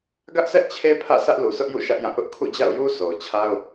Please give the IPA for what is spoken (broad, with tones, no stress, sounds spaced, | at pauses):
ɡ ä˦ ʔ s ɛ˦ ʔ t͡ɕʰ e˦ pʰ ä̰˦˨ s ä˦ ʔ l u˨ sʰ ʊ˦ ʔ j ṵ˦˨ ʃ ä˦ ʔ j ã˦˨ ʔ ʊ˦ ʔ kʰ ṵ˦˨ d͡ʑ a̰˦˨ ʊ̯ j u˦ s o˨ ʊ̯ t͡ɕʰ a˦ ʊ̯